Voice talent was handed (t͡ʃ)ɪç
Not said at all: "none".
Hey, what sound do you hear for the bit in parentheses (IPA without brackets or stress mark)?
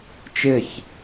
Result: t͡ʃ